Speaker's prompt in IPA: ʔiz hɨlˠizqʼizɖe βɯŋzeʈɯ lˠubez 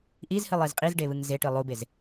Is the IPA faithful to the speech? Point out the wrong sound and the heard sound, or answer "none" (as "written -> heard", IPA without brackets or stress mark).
none